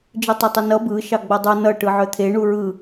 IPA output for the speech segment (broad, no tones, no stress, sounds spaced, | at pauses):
d͡ʒ ɯ tˤ ʌ tˤ ə n ʌ b ɯ ʃ ɑ ɡ͡b ʌ dˤ ʌ n ʌ ʈ ɯ ʕ œ t̪ʰ e ɳ u ɹ ɯ